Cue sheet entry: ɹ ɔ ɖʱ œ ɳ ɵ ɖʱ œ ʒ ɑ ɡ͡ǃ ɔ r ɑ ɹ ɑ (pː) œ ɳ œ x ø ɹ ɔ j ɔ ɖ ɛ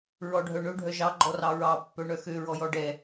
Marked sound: correct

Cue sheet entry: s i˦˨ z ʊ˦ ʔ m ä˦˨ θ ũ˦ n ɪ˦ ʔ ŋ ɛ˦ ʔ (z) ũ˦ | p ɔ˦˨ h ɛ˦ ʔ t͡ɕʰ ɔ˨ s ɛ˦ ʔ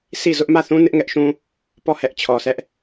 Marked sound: incorrect: ʃ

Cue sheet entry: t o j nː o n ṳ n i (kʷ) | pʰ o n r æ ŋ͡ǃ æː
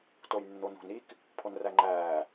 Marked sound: incorrect: k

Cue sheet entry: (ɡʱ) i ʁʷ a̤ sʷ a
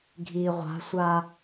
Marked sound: correct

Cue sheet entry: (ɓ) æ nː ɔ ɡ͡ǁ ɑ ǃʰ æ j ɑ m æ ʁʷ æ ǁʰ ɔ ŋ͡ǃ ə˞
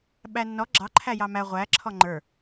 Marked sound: correct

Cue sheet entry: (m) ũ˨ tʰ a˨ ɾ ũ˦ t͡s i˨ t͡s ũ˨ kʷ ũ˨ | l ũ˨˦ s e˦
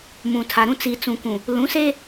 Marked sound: correct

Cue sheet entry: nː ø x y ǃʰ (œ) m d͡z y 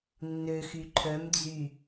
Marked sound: correct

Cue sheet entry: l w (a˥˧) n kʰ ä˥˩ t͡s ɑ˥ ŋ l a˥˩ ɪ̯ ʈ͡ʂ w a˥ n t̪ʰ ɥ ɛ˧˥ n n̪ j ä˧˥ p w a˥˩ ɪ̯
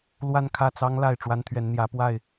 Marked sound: correct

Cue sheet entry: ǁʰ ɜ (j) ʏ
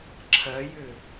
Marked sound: correct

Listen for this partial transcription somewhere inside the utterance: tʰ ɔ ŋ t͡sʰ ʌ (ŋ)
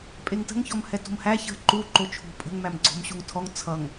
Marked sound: correct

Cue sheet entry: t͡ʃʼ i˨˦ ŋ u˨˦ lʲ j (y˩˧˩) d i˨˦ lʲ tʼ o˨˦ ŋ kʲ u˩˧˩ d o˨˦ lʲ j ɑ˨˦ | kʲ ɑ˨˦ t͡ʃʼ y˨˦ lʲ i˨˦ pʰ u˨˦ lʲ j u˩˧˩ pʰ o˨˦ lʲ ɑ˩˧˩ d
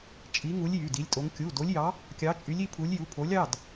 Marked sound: correct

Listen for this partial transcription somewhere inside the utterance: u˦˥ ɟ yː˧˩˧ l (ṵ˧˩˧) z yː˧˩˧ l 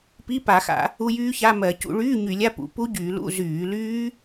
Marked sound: incorrect: ṵ˧˥˧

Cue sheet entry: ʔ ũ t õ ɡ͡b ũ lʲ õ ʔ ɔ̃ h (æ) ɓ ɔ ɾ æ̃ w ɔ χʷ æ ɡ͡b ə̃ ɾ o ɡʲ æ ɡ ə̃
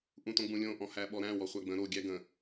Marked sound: correct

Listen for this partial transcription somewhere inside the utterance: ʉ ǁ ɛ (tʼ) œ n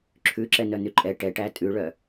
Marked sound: incorrect: n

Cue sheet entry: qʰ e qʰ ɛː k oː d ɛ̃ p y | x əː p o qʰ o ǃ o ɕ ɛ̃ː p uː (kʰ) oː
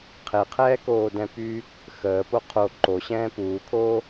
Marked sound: correct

